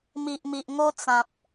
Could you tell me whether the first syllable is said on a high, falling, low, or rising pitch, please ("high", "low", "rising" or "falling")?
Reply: low